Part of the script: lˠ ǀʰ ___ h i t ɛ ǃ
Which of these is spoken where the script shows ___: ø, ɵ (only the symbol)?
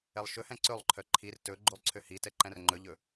ø